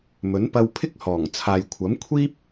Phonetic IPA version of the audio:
m ɵ˨˥ n p ɐ˧ w pʰ ɪ˥ k̚ h ɔː˨˩ ŋ t͡sʰ aː˨ j kʷʰ ɐ˨˥ m kʷʰ iː˥ p̚

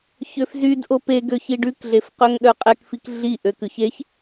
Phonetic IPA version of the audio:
ç ø f z y d ʔ o p e ɡ ø ç i ɖ ʉ k ɮ e f q ø ŋ ɗ œ qʼ ɛ k f i k ɮ i ʔ ø k ʉ ç e ç

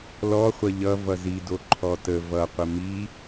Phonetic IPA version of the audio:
l ɔ χʷ ʌ ʎ ʌ v ʌ z i d o ǃʰ ɔ t ə v ʌ qʷ ə m i

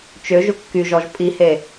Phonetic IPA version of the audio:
t͡ʃ ø ʒ ʊ kː y ʒ ɔ ʒ pʼ i h e

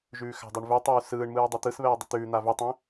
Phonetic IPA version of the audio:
ʒ ʉː x a̤ dˤ o ɳ v ʉ tˤ ʉː s ɯː ɳ m ɯː dˤ ʉ t̪ ɯ s β ɛː dˤ ə t̪ ʉː n̪ a v ʉ tˤ ɛ̃

